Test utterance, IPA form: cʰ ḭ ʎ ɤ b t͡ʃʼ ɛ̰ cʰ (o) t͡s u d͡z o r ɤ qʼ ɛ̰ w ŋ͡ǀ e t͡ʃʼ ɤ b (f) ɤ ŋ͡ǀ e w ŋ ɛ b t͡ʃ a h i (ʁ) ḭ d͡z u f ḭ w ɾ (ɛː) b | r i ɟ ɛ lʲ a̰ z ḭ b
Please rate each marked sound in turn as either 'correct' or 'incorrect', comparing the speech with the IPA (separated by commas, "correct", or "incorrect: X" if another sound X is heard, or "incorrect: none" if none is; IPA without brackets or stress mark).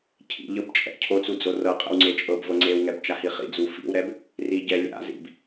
correct, incorrect: v, incorrect: χ, incorrect: ɛ